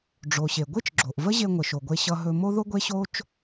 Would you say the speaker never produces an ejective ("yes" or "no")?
yes